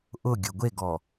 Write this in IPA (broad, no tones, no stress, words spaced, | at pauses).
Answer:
ʔʊɡʲʊ ɡʷeɡɔ